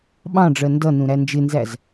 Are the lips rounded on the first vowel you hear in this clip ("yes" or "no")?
no